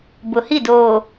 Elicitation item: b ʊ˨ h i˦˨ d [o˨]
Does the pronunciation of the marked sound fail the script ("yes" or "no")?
yes